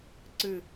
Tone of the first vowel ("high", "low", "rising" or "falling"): falling